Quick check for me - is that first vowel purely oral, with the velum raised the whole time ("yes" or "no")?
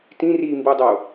no